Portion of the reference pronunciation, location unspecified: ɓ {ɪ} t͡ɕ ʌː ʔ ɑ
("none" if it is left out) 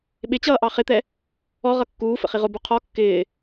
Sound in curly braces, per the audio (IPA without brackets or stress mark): ɪ